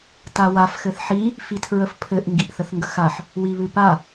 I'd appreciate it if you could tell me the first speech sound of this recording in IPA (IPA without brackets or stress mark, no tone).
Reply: t